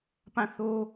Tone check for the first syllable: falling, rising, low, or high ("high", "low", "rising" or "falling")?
falling